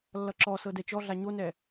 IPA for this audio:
lːʌǁɔsɤ dɛt͡ʃɔɮa ɲonɛ

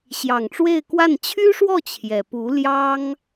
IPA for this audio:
ɕjɑ˨˩ŋʈ͡ʂwe˥˧ɪ̯kwa˥˩n t͡ɕʰy˥ʂwɔ˥˩ t͡ɕʰjɛ˨˩ pu˧˥ljɑ˥ŋ

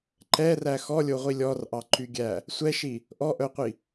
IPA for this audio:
ǃɛræ xɔlʲoʁʷi lʲɔrʔɑǃyɡʲæ | sʷɛʃi | ʔɔʔœqʷi

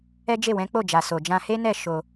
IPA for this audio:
ɛ˦d͡ʒe˦˨wɛ̃˨˦ k͡po˦˨d͡ʒa˨ so˨d͡ʒã˧ he˦nɛ˦˨ ʃo˧

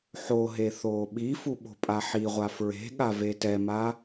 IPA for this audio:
ħoɦe θoːɓifu ɓo̤pʼaħiʁʷa fɹe̤ɠa vetɛma

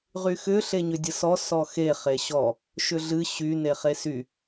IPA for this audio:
ʁyxʏ ɬeɲʏdʲəsɔ sɔxe χeɕɔ | ʃʏɮɨ ɕy neχesy

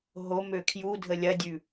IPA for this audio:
ɦom økʰjudʱə lʲɐdʲʉ

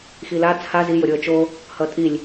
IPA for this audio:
xila t͡sʰa zijoɾʲoə̯ t͡ʃo | hʌtʼilʲ

